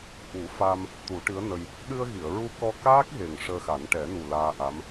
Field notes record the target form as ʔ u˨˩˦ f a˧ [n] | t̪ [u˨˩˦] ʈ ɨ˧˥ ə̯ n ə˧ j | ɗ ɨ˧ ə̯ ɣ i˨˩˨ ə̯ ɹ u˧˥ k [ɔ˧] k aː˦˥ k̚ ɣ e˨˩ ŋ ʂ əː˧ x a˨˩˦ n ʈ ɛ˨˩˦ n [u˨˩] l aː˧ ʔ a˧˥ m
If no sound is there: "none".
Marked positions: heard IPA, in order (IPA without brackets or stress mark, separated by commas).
m, u˨˩˦, ɔ˧, u˨˩